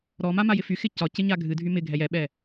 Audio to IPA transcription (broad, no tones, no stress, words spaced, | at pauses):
ɾɔma majɪfyxɪ cɒ cɪɲaɡʱɨdʱy mɪ ɡʱɛjɛɓɛ